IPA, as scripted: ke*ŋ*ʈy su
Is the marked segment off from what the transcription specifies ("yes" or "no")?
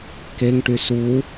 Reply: no